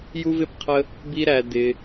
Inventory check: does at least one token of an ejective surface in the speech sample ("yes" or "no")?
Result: no